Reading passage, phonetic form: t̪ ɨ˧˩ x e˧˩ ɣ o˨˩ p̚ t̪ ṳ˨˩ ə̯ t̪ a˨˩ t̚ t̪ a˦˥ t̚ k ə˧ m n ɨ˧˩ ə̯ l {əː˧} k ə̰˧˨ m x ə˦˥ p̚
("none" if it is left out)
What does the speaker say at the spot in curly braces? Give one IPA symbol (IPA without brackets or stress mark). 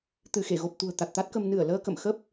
əː˧